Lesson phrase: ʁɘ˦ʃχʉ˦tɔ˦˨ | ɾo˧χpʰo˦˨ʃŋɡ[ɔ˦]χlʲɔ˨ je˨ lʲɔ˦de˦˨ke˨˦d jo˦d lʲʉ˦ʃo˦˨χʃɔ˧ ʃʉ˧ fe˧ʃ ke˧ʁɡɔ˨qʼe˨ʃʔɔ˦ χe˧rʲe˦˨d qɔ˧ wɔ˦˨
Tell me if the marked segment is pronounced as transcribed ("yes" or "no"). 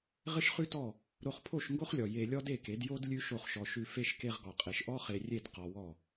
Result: no